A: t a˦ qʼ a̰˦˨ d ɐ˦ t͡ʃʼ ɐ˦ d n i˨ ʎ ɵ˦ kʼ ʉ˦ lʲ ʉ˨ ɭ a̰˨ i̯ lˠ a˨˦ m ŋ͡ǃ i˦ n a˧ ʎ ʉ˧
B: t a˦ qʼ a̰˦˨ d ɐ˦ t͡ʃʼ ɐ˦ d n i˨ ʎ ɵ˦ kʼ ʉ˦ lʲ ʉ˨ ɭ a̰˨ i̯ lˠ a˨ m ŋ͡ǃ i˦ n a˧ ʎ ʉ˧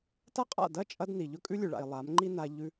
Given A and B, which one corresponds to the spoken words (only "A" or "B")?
A